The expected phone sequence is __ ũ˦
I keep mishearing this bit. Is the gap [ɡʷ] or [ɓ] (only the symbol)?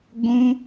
ɡʷ